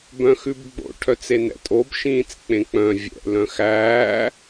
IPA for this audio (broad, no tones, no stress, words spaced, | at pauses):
bœ̃xʉbɡ͡bo̰ ʈʰœt͡senɛ̰tʼob ʃĩːt͡sk͡pẽk͡pœ̃ vʲɛ̰ lœ̃xæː